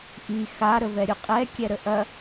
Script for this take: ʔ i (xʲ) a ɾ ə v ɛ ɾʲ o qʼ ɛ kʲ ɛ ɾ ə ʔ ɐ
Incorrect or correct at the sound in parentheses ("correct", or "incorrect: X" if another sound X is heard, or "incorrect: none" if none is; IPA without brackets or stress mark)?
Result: incorrect: x